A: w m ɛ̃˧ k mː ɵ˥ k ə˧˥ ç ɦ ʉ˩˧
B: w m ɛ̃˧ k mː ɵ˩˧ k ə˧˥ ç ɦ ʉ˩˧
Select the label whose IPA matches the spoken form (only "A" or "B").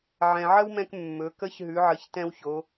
B